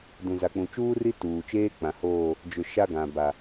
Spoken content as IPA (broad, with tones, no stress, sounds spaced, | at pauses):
d ũ˨ z a˨ k͡p ũ˨ t͡ʃ uː˦ r i˦ t uː˨ t͡ʃ eː˦ k͡p ã˨ h oː˦˨ | d͡ʒ ʊ˨ ʃ a˦ ɡ ã˨ b a˨